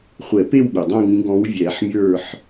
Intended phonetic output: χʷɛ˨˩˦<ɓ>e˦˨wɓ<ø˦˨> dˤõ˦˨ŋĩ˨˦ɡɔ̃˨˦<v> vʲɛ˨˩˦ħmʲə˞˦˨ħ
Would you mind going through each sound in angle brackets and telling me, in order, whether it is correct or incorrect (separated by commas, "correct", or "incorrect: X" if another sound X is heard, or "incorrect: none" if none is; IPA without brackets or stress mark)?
incorrect: p, incorrect: ø˩, incorrect: w